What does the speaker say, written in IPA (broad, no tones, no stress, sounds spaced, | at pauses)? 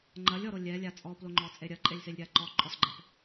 ŋ͡ǃ ɐ lʲ ɔ ɾ o lʲ ɛ lʲ a t͡sʼ ɔ p l o ŋ͡ǃ ɔ t͡sʼ e ɾʲ ɐ ǃʼ e lʲ s e lʲ ɾʲ a ǃ ɔ ǃʼ ɔ s ɡ͡ǃ ɛ p